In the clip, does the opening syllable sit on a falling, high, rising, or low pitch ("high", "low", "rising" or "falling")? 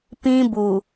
high